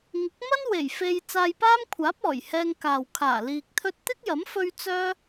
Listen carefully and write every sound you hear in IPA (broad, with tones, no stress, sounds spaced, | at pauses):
ŋ ɪ˨˥ k̚ m ɐ˥ n w e˨˩ j f e˧ j t͡s aː˧ j p aː˥ m kʷʰ aː˨˥ p̚ ɔː˨˩ j h ɛː˧ ŋ k aː˨ w kʰ aː˨˩ l iː˨ k̚ t̪ʰ ɵ˥ t̚ t̪ ɪ˥ k̚ j ɐ˨˥ m f ɵ˥ ɥ t͡s œː˥